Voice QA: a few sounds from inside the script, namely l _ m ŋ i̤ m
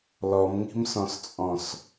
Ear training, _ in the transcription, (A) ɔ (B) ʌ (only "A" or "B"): A